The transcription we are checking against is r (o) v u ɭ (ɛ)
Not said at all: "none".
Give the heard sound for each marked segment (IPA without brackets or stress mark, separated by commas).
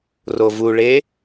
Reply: o, e